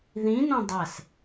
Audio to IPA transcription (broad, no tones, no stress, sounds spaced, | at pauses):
ð ĩ n õ dˤ æ s